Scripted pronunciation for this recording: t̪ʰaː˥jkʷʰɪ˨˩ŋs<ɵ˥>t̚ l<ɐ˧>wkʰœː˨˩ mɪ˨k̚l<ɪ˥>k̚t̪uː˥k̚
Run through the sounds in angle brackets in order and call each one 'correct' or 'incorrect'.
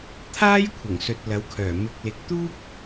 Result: incorrect: ɵ˨, incorrect: ɐ˨˥, incorrect: ɪ˨

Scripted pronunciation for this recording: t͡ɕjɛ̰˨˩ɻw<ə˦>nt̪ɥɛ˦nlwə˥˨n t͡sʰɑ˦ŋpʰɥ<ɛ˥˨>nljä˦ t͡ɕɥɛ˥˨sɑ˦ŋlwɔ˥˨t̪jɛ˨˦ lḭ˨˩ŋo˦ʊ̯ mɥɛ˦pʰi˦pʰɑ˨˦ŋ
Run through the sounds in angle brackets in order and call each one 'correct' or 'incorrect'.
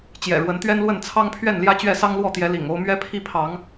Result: incorrect: ə˨˦, correct

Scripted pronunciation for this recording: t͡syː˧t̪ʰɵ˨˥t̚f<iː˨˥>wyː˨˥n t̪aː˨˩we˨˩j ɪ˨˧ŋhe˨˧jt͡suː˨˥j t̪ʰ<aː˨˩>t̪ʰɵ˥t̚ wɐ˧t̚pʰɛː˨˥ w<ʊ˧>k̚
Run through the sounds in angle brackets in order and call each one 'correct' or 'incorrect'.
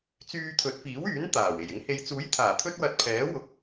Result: correct, correct, incorrect: ʊ˨

